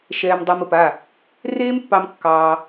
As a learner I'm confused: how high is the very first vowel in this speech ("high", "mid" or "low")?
mid